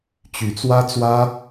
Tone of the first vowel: rising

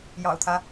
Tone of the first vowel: low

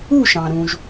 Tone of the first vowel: falling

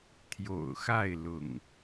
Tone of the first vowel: low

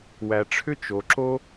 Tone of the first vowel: low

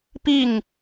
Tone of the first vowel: falling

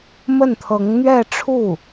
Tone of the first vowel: falling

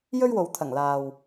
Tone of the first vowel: high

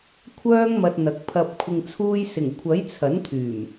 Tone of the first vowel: high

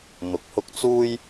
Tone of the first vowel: low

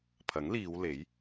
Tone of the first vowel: rising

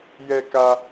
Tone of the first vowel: high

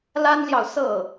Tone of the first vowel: high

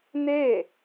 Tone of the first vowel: falling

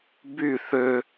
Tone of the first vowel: falling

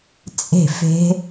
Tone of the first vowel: falling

